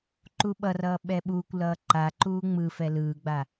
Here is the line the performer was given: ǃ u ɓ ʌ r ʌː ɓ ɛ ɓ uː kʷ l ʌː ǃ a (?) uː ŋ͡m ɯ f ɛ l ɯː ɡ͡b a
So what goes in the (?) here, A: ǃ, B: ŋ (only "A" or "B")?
A